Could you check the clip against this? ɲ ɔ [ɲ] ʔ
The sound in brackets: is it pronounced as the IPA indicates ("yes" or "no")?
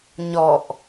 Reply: no